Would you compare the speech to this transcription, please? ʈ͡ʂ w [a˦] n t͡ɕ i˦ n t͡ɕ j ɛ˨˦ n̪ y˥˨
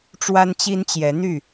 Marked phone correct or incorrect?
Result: correct